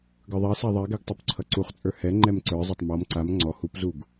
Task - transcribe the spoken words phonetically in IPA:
ɡ ə˞ ðˤ ɛ s a ðˤ ɛ ɡ ɛ ɡ tˤ u p ǀʰ ʌ ǀ u χ t͡sʼ ə˞ h ɛ ŋ͡ǃ ɛ m ǀ ə˞ zˤ ʌ tˤ m ɔ m ǀ a m ŋ͡ǀ ɔ h u p z u ɡ

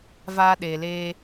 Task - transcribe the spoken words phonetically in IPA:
v aː˧ ɗ eː˨ l eː˧

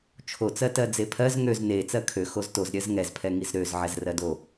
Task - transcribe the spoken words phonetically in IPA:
t͡ʃʰ o t͡s ɜ t ɜ d͡z e pʰ ɜ z ŋ ø z n e t͡s ɜ kʰ ø x o z t o z ɾʲ ɜ z ŋ ɛ z pʰ ɛ ŋ i z ɾ ø z ʕ ɛ z r ɜ d o

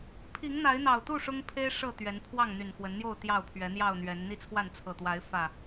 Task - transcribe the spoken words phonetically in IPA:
pʰ i˨˦ ŋ n̪ a˨˦ ɪ̯ n̪ ɑ˨˩ ʊ̯ t̪ u˥˨ ʂ ʊ˦ ŋ pʰ e˦ ɪ̯ ʂ ɤ˥˨ t̪ ɥ ɛ˨˦ n pʰ w ɑ˥˨ ŋ n̪ y˨˩ n x w ə˨˦ n n̪ j o˥˨ ʊ̯ t̪ j ɑ˥˨ ʊ̯ pʰ ɥ ɛ˨˦ n̪ j ɑ˥˨ ʊ̯ n̪ ɥ ɛ˨˦ n n̪ i˥˨ t͡sʰ w a˥˨ n t͡sʰ ɤ˨˩ t̪ w a˨˦ ɪ̯ f ä˨˩

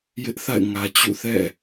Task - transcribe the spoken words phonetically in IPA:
j ɪ˦ ʔ θ a̰˦˨ ɪ̯ ŋ ä˨ t͡ɕ ṵ˦˨ θ ɛ̰˦˨

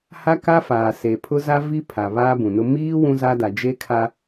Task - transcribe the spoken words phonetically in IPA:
h a˦ k a˦ f aː˨ s e˨ pʰ ʊ˦ z a˦ v i˦ pʰ a˨ β aː˦ b ũ˨ n ʊ˦ m iː˦ w ũ˦ z a˦ d a˨ d͡ʒ e˦ kʰ a˦

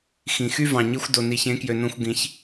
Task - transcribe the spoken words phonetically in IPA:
x ĩ˨ x y˦ v ɑ̃˨ ɲ i˧ xʷ d o˨ n i˨ ç ẽ˨˦ k j ø˨ n õ˧ xʷ ɡ ĩ˨˦ ç

